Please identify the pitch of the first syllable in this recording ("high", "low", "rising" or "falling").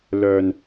low